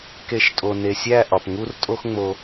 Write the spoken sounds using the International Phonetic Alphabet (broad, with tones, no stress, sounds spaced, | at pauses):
k e˨˦ ʃ tʼ o˨ n e˨ sʲ æ˦˨ ʔ ɒ˨ p ŋ u˦ r tʼ o˦ x ŋ͡m o˧